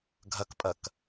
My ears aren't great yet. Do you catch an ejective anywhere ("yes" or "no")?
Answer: yes